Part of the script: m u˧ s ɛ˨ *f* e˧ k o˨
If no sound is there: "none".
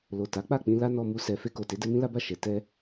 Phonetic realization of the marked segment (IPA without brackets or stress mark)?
f